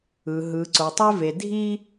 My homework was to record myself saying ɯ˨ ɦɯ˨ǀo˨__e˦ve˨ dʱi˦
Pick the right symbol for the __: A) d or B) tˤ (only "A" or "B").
B